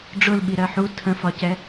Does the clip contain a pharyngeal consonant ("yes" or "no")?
yes